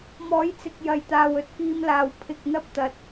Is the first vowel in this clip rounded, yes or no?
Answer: yes